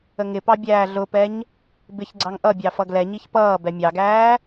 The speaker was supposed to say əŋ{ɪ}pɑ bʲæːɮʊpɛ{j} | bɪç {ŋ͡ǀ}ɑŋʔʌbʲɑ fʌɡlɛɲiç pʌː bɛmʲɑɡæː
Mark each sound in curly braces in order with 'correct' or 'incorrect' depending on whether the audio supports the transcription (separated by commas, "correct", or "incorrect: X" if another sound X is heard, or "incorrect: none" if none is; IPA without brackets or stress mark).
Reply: correct, incorrect: ɲ, incorrect: ɡ͡ǀ